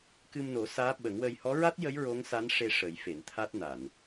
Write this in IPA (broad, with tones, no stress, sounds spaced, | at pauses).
k ɨ˧ m n o˨˩˦ s aː˧˥ ɓ ə˨˩˦ ŋ w ə˧ j h ɔ˧˥ ɹ a˦˥ t̚ j ə˧˥ j ɹ o˧˥ ŋ s a˧˥ n ʂ e˧ ʂ ə˨˩˦ j f e˨˩˨ n t̪ʰ a˦˥ t̚ n a˨˩˨ n